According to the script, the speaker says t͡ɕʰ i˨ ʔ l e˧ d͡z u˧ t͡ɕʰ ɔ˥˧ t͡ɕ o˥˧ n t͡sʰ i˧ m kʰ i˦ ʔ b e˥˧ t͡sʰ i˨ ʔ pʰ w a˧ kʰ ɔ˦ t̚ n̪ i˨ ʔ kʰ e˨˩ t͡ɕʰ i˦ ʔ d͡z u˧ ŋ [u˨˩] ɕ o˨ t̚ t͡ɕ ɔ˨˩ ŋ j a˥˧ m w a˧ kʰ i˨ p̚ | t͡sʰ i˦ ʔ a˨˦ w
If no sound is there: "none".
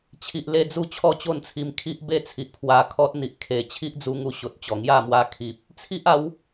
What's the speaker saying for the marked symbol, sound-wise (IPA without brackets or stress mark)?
u˧